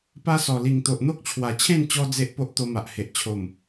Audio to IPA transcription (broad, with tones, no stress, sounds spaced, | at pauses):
p a˦ s ɔ˨˩ l i˨˩ ŋ t̪ o˨ ʔ n̪ o˦ k̚ t͡ɕʰ w a˨˩ t͡ɕʰ ẽ˥˧ n t͡ɕ ɔ˧ d͡z e˦ ʔ p o˦ ʔ t̪ o˧ m a˨ ʔ h e˨ ʔ t͡ɕʰ o˨˩ m